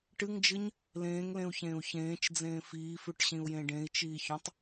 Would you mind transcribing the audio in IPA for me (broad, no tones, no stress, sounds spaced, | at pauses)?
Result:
ʈ ɨ ŋ d͡ʒ ɨ ɲ | l ẽː ŋ l ẽ u̯ ç ẽː u̯ ç ẽː t͡ʃ d͡z ẽː f iː f ʉ ʈ ɕ ĩ u̯ j ẽ ɖ ẽ i̯ t͡ʃ iː ç õ tˤ